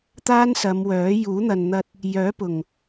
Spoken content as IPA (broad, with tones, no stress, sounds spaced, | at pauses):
t̪ aː˥ n s ɐ˨˧ m w œː˨˥ j uː˨˥ n̪ ɐ˨ n n̪ ɐ˧ t̚ | j œː˨˥ p ʊ˨˩ ŋ